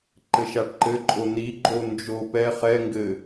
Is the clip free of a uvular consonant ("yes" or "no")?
no